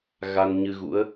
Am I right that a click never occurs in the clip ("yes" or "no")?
yes